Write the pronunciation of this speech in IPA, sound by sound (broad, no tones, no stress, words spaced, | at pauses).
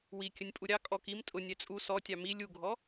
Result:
wikʲənʲpʼu ɾʲɑ kʼɔk im tʼʊnʲɛ t͡sʼu sɔtʲɑ mi lʲuɡʱɔ